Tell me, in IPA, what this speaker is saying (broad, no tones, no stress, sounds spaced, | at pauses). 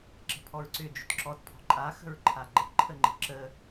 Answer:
ǁ ə̤ pʰ ɔ ɹ ǀ ʏ d͡ʒ ʏ t ǁ ɔ t pʰ ɔ̤ ǃʼ a x ə̤ ɹ ǃʰ a ɡ͡ǃ ə ǃʰ ə ŋ͡ǃ ə̤ ǁ ə